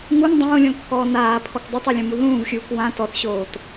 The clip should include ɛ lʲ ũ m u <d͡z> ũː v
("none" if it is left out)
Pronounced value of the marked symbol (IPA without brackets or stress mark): ð